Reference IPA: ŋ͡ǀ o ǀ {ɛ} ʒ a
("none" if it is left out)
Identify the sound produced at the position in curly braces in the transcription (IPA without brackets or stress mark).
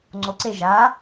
e